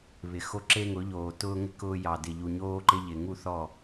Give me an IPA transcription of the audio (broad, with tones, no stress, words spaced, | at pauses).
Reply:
βɪ˨xo˦ ǁe˦ŋʊ˨˦ ʎoː˨tʊː˦ŋɪ˦ kʊː˦ jɑ˨dɪ˨ ʎu˨ɲoː˦ǃɪ˦ ʎɪ˨ ŋu˦˨θɔ˦˨